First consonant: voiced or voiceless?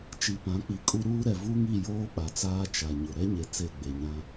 voiceless